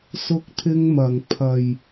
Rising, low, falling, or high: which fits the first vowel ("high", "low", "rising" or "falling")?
high